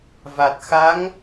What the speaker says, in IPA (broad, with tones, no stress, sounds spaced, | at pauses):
v a˨˩ t̚ x a˧˥ ŋ